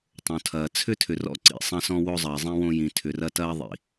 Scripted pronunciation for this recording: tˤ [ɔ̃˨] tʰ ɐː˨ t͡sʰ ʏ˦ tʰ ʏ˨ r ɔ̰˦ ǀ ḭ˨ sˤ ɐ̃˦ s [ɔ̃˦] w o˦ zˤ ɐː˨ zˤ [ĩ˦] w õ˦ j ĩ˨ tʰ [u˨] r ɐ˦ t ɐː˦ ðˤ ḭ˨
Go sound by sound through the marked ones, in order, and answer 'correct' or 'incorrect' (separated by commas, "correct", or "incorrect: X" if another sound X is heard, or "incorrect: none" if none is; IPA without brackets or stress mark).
incorrect: õ˨, correct, correct, incorrect: ʏ˨